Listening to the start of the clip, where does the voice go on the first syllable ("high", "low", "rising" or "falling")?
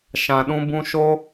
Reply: low